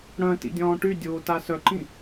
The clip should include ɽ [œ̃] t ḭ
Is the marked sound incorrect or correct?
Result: correct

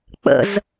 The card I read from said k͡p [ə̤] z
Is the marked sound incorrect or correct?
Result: incorrect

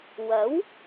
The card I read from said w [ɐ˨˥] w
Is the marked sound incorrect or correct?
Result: correct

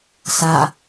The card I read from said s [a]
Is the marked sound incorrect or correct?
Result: correct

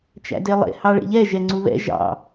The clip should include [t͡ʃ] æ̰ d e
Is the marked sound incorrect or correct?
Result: correct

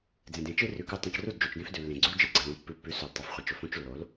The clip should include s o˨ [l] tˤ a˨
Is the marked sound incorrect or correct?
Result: correct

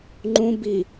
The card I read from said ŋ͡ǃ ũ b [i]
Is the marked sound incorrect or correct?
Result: correct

